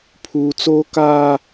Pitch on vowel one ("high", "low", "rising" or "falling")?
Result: low